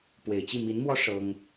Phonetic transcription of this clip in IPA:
p w e˨˩ ɪ̯ t͡ɕ i˥˩ m i˧˥ n m w ɔ˥ ʂ ɤ˥ ŋ

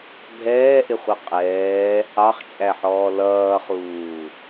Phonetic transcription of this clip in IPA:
bʱ ɛː ʔ ɪ χʷ ʌ qʼ ɛː | ɑ χ t͡ʃʼ æ ħ ɔː l ʌː χ uː

